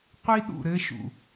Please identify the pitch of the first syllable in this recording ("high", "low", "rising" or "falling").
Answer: high